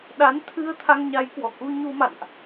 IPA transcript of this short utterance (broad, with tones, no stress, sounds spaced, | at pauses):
ɗ a˨˦ n t̪ʰ ɨ˧ ə̯ t̪ʰ a˧ ŋ ɲ a˨˦ j k w ɔ˧˩ k u˧ ɲ u˧ m a̰˧˨ n ʔ